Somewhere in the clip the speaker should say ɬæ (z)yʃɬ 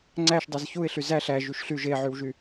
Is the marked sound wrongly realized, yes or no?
yes